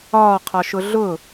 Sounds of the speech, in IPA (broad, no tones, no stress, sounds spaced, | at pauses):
ɒː qʰ ɒ ʃ ʊ ɮ ʊ